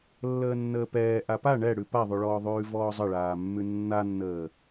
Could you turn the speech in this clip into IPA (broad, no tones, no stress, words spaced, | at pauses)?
lːəːnːəːpɛː ʔapa ɳɛɽʉ paðˤʉɭɔːðˤʉː vɔːzˤəɭaːmːʉ nːanːəː